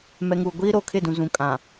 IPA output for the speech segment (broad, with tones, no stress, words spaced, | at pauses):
mɛ˨ŋuː˨ ɡʷiː˦ɾoː˨kʰɪ˦˨dũ˨ zũ˨kʼã˨